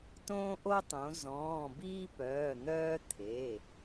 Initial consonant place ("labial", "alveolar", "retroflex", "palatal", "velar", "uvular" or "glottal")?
alveolar